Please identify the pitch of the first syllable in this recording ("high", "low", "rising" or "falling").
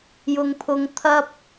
high